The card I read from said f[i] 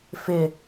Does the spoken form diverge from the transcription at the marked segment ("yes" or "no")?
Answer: yes